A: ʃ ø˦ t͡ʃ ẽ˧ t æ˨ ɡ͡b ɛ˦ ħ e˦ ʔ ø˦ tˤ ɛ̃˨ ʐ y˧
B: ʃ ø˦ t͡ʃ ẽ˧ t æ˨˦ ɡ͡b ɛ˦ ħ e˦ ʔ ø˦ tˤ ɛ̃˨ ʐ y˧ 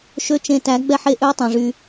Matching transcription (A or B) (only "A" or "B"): B